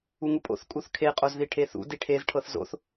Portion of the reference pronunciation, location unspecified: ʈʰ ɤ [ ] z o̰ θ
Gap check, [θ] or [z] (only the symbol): θ